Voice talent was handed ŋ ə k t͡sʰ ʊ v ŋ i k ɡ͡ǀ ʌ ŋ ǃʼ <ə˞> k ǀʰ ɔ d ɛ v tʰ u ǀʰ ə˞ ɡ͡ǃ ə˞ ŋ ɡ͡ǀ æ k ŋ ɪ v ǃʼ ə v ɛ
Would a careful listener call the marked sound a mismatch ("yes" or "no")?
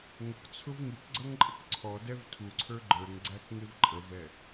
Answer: yes